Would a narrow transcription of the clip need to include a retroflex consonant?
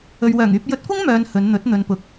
no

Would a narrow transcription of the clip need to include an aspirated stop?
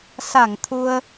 yes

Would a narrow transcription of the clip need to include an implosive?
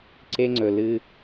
no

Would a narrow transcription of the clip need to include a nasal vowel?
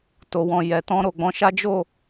yes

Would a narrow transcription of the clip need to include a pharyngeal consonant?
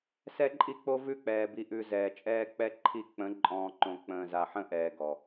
yes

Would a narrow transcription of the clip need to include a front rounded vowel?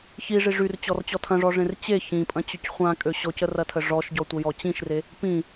yes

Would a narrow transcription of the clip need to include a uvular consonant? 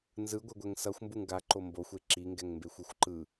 no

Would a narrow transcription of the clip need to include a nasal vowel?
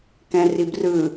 yes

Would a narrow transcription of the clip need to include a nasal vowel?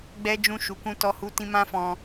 yes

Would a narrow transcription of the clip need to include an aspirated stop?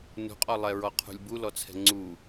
yes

